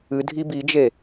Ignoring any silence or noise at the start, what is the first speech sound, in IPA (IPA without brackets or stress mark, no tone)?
ɨ